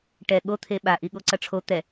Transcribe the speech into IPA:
ʈɛ ɠo t̪ʰeɓaʔi ɠoǀʌʈ͡ʂʰo t̪ɛ

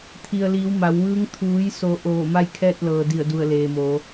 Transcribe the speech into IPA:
t̪ʰi˩ə̯liː˩˧w ma˩˧wʋɯː˧˥ŋ t̪ʰuː˩˧jso˩˧ ʔoː˧˩ma˥˨jkʰɛː˥˨t̚lɤː˩ di˧˩ə̯du˧˩ə̯leː˩moː˩˧

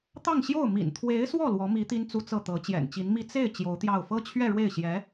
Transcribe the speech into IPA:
t̪ɑ˥˧ŋɕjo˥˩ʊ̯ mḭ˨˩nt̪ʰwe˧˥ɪ̯swɔ˥˩ lwɔ˧˥mi˧˥ t̪i˥nt͡su˥t͡sɤ˥˩t̪ɤ˧˥ t͡ɕjɛ̰˨˩nt͡ɕi˧˥nmi˥ t͡se˥˩ɪ̯ t͡ɕjo˧˥ʊ̯t̪jɑ˥˩ʊ̯ fɤ˥t͡ɕʰɥɛ˥˧ɻwe˥˩ɪ̯ɕjɛ˧˥

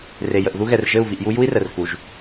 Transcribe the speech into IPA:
re˨ jə˨ʔðu˦ɣɛ˨r ʒɘ˦˨u̯vi˨ʔju˦ ju˦i̯rə˨r ku˨ʒ

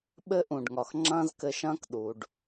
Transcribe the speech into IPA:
ɓɘ˥ʔũ˩ɖŋɒ˩x ŋ͡ǁɐ̃ː˥zkɘ˧ʃɐ̃ː˥k ɗu˩ɖ

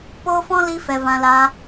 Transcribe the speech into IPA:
poː˦fɔ̃˦ li˦fɛ˧ vã˦laː˦

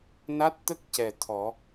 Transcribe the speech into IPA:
na˦˥t̚t̪ə˦˥k̚cɛ˨˩ t̪ʰɔ˨˩˦

